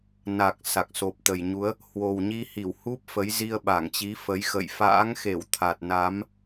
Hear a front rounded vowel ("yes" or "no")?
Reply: no